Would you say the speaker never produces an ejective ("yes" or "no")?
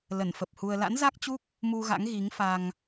yes